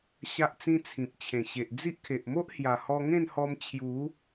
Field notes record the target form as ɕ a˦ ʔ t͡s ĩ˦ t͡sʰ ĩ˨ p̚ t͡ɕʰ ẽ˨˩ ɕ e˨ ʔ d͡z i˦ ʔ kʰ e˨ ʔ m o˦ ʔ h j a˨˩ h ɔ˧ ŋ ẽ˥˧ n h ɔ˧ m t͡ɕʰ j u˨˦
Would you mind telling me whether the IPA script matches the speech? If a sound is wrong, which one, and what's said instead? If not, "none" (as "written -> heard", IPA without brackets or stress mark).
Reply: none